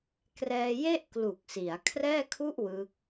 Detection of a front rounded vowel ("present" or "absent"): absent